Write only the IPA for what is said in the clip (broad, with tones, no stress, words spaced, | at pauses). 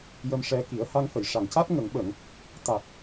jə˧mʂɛ˧ ki˨˩˦ə̯ ha˧ŋfə˨˩˨jʂa˨˩ŋca˦˥t̚ ŋə˨˩˨ŋɓə˨˩˨ŋ | t̪a˨˩k̚